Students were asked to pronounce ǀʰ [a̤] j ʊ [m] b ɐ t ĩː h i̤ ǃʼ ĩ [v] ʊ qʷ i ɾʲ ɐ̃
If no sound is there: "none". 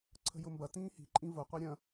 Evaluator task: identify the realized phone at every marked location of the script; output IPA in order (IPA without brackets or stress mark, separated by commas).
ə̤, m, v